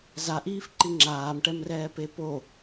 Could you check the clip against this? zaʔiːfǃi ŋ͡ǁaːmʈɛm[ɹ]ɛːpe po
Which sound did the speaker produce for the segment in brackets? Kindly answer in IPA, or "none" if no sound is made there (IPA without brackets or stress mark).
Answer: r